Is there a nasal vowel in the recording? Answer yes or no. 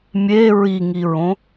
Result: yes